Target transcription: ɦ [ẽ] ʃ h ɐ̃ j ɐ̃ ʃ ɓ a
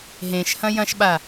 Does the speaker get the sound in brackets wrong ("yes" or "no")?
no